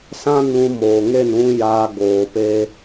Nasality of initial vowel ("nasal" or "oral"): nasal